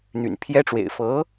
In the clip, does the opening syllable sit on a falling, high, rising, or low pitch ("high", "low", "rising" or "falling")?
low